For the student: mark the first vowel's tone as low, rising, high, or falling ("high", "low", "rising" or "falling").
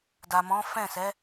low